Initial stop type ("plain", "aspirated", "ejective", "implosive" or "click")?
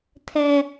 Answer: aspirated